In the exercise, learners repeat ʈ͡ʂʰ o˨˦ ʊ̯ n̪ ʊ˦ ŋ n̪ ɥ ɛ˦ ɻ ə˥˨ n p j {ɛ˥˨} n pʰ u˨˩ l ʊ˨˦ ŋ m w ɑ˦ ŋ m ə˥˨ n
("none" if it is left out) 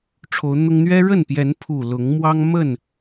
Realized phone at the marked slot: ɛ˨˦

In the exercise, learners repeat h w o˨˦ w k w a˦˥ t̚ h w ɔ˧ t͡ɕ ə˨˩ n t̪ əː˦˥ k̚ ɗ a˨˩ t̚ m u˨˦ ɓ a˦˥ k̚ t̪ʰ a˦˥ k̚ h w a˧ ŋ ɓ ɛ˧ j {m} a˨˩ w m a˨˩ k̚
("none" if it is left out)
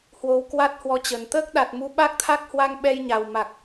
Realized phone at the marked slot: ɲ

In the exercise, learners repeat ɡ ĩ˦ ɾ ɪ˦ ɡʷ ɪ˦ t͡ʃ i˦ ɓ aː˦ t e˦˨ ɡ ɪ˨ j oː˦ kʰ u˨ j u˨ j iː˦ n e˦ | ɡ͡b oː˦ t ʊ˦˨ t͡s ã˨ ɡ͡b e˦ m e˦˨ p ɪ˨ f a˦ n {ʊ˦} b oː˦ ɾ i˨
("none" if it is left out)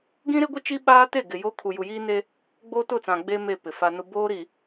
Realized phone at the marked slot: ʊ˦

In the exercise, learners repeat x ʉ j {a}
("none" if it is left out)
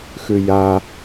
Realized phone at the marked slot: a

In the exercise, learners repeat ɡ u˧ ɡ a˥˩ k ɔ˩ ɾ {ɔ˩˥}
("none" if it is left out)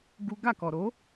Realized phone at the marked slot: o˩˥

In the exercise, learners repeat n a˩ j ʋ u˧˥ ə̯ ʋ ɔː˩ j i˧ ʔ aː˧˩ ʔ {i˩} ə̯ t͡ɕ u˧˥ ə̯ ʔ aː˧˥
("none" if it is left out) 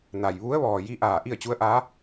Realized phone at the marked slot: i˥˨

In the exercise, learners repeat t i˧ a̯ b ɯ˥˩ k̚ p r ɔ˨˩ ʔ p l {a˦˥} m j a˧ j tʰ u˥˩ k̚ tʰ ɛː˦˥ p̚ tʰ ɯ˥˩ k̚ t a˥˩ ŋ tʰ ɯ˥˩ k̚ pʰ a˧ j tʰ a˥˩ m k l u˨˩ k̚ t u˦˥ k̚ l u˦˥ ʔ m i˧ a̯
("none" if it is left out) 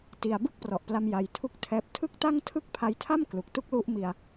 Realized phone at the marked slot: a˧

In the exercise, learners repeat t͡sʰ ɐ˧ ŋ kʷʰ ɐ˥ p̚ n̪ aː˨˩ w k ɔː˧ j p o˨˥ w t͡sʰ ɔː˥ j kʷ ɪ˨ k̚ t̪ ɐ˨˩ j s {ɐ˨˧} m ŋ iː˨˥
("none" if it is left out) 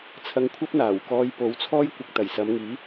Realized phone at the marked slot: ɐ˨˧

